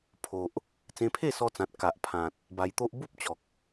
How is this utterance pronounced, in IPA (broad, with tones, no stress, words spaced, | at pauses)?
pʰo˨ʔ | t͡sẽ˧pʰe˥˧sɔ˧t͡sã˨t̚ ka˨ʔpʰã˨t̚ | ba˧jt̪o˦ʔ bu˦p̚ t͡ɕɔ˨k̚